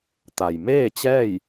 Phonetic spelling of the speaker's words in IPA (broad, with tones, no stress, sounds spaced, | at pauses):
t̪ a˩ j m eː˥˨ t͡ɕ ɛː˥˨ j